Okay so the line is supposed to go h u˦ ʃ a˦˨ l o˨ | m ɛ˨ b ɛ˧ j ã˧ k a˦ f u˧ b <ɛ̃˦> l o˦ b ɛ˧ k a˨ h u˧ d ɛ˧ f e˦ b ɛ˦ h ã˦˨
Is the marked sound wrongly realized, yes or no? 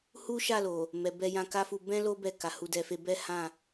no